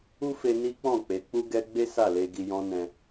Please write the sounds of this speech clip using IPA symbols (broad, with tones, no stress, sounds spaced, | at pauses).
u˦ f e˧ n i˦ k͡p ɔ̃˦˨ k͡p e˨˦ k͡p u˦ ɡ ɛ˦ ɡ͡b e˦ s a˦˨ l e˧ ɡ i˧ j ɔ̃˦ n ɛ̃˧